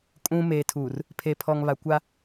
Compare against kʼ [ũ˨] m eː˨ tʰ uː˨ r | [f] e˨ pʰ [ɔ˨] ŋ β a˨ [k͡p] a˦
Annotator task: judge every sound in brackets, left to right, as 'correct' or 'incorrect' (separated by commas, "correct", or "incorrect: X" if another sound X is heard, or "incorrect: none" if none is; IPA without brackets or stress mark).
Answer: correct, incorrect: pʰ, correct, incorrect: kʷ